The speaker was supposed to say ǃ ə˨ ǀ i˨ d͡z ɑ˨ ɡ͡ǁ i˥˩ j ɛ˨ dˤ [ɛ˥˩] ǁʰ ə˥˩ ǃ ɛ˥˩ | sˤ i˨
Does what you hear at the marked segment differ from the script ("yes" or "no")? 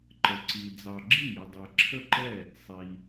yes